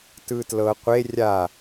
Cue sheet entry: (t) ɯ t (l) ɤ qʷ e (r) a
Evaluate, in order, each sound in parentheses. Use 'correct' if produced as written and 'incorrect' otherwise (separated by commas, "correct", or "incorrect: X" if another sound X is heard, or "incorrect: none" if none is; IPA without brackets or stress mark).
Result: correct, correct, incorrect: rʲ